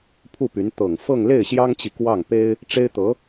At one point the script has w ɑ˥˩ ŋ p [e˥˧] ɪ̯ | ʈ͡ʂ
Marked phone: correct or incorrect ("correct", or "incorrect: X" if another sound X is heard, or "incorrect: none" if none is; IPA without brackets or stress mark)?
incorrect: e˥